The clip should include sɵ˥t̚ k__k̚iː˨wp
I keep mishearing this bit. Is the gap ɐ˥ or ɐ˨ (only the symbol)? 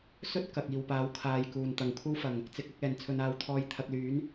ɐ˨